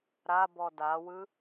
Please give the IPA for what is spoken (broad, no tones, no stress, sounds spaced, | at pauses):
ɾ a b ɔ d a w ɯ